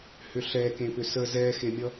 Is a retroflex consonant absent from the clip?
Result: yes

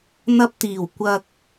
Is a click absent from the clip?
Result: yes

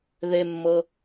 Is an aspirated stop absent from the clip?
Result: yes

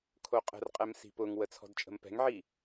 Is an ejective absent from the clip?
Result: no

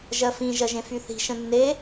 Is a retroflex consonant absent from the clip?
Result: yes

